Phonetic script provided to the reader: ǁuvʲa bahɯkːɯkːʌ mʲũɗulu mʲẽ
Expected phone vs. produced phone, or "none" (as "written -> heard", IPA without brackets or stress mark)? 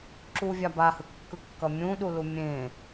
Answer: none